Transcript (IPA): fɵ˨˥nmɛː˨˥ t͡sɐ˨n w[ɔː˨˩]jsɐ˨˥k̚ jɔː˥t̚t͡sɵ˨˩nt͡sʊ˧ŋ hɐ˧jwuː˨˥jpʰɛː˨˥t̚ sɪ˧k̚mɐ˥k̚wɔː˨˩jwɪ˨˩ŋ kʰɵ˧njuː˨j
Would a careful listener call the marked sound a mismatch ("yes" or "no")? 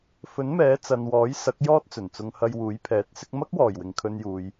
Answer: yes